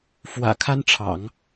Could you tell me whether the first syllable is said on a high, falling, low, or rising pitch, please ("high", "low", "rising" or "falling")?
low